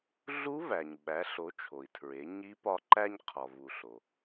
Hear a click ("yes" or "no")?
yes